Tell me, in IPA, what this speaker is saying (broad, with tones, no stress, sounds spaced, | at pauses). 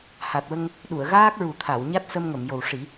h a˨˩ t̚ w ə˧ ŋ | ɗ u˨˩˨ ə̯ ɣ aː˦˥ k̚ ɹ u˨˩˦ t̪ʰ a˨˩˨ w ɲ a˦˥ t̚ s ə˧ m ŋ ə˨˩˨ m j o˨˩ w ʂ i˨˩˦